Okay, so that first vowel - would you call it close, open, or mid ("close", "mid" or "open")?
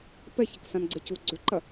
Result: mid